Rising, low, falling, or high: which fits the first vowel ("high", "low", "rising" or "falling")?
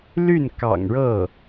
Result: falling